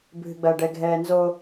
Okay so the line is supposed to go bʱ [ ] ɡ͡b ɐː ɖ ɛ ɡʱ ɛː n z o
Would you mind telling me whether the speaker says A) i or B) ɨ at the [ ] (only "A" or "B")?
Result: B